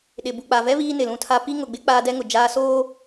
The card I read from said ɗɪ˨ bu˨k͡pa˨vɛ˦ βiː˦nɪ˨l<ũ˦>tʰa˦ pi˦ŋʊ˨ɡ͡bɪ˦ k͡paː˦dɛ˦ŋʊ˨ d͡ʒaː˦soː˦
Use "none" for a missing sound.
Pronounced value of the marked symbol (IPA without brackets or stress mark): ũ˦